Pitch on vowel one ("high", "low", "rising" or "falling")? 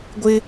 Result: high